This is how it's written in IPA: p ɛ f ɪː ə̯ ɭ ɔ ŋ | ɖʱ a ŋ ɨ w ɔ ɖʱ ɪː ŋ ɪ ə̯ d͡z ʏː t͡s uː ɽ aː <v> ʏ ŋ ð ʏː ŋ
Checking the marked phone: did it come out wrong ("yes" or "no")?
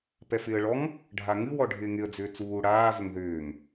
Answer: no